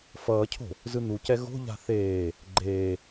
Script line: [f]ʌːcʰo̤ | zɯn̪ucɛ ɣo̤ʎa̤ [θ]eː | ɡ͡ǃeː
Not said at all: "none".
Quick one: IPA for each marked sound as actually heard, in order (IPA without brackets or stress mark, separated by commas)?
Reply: f, θ